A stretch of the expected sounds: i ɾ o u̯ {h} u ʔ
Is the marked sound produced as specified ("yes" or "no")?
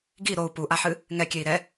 no